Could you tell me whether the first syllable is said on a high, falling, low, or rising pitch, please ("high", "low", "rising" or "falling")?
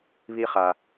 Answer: high